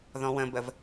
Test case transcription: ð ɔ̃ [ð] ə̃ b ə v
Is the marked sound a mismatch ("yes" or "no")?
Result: yes